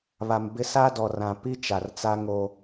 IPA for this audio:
βa˨m bɪ˦ sa˦dɔ˨rã˨ pi˦ t͡ʃa˨rt͡sa˦ ŋo˦

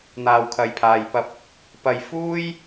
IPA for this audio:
n̪aː˨wkʰɐ˨jpʰaː˨jpɐ˧p̚ | pɐ˧jfuː˥j

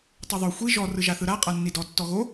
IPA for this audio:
tˤoðˤo xʷi ʒɔ rɯʒaθɯɾa qʼanːidɔ tːɔɣo

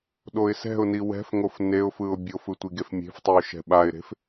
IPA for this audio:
ɗoɪ̯sɛ̤ʊ̯ni wɛ̤fŋof neʊ̯fɯʊ̯ bʲofɯ tʷiɡefmʲe̤ftˤiʊ̯ ʃɛ̤ɓaɪ̯ɾe̤f

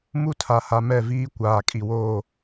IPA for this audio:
mu˦tʰa˨ha˨ mɛ˦˨viː˦ kʷaː˨kʼi˨woː˦˨

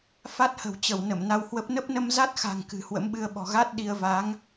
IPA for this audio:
fa˦˥t̚hə̤˨˩wt͡ɕə˧˩w nə˧˩mna˧whwə˦˥p̚ nə˦˥p̚nə˧mza˦˥t̚xa̤˨˩ŋ kɨ̤˨˩hwə̰˧˥mɓɨ˧ə̯ɓɔ̤˨˩ ɣa˦˥t̚ ɗi˧ə̯ va˨˦ŋ

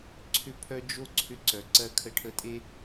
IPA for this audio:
ǀʰʏ˧pʰœ˧ d͡ʒo˧ ǀʰʏ˧ǀœ˨ǀɜ˧ kʰə˧ʈʰə˧tʼe˦

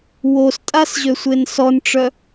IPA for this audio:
wostʼasʑøsʷen sɔnʈ͡ʂœ

